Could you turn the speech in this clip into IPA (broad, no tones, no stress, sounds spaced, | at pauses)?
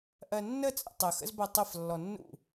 ʔ ɜ nː ə t͡sʼ ə̰ tˤ ə x ə̰ z b ɜ tˤ ə f lː ɔ nː ṵ